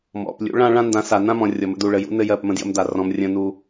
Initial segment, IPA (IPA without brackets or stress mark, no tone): m